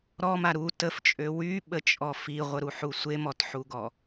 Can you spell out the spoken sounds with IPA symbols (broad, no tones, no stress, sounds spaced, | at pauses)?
ɾ ɔ m a ɾ u t ə f t͡ʃʼ ø w y ɓ ə t͡ʃʼ ɔ f i ʁʷ ə ɾ u ħ u sʷ e m ɔ t ħ u ɡ ɔ